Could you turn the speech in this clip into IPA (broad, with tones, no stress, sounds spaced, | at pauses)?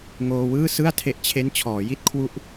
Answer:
ŋ oː˧ w ɯː˥˩ s ɯ˥˩ a̯ tʰ e˦˥ ʔ t͡ɕʰ e˦˥ n t͡ɕʰ ɔː˩˦ j i˥˩ t̚ kʰ w u˦˥ ʔ